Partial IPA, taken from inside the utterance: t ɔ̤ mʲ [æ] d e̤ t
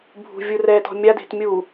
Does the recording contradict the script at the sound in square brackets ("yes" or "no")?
yes